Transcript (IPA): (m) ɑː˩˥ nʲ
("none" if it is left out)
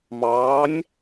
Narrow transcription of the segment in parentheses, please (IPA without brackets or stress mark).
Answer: m